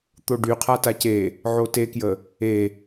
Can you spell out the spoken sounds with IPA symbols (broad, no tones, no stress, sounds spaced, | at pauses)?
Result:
t̪ o ɖ y qʰ a t a c e | ʕ o t e k j ə | e